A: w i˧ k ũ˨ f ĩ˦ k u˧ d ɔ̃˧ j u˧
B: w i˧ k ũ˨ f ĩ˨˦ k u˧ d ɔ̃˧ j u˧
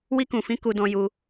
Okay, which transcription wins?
B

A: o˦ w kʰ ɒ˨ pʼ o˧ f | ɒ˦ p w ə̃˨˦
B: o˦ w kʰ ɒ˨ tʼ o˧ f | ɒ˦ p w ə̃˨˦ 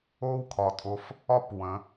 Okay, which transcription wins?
B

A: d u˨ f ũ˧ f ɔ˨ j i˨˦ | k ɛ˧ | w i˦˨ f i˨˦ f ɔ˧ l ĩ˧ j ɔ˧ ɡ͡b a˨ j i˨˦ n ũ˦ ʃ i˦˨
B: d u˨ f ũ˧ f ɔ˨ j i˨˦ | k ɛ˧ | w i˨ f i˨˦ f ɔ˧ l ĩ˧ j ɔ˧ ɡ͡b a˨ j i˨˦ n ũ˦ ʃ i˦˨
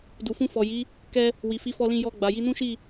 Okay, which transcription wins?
B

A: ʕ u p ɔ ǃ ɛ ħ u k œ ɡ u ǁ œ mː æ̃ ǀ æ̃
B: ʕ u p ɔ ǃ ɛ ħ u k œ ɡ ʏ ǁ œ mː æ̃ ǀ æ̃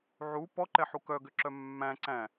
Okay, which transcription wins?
B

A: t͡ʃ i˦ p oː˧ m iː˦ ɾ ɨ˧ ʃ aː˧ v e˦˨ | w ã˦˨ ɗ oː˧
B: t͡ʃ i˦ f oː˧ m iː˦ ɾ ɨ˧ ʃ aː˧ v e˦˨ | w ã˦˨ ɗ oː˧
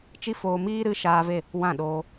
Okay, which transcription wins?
B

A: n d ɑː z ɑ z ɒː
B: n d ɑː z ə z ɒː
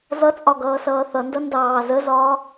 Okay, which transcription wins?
B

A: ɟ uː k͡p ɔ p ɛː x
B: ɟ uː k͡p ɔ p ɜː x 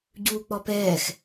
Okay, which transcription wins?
A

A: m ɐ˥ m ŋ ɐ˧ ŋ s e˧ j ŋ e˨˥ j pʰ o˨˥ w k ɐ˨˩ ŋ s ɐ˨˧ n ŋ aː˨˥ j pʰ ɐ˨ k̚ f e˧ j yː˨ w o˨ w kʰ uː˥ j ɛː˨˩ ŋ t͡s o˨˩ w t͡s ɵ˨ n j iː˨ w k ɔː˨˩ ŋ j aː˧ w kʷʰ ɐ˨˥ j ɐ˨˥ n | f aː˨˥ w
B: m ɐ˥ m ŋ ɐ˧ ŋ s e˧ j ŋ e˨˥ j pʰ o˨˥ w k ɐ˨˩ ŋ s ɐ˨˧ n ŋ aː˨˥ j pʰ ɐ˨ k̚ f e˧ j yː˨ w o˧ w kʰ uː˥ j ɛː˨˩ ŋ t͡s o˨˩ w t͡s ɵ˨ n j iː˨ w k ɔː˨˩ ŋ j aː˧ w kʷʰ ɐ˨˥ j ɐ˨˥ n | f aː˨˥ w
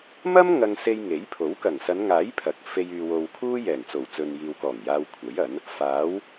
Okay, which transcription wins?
A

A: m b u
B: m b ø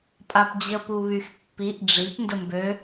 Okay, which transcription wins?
B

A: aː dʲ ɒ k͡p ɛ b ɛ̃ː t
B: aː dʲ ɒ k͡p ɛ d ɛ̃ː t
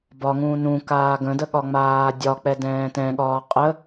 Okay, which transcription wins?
B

